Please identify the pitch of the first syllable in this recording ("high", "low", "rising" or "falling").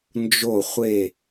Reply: falling